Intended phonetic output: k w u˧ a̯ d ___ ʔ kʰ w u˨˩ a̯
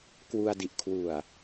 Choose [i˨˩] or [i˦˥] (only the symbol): i˨˩